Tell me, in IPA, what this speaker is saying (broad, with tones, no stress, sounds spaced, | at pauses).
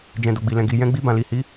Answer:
d͡ʒ ɛ̃˨ d o˨ ɡ͡b i˨ l ɛ̃˨ ɡ i˨ j ɛ̃˧ ɡ͡b i˧ b ã˨ l i˨ h i˨˦